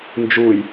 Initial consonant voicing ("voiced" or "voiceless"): voiced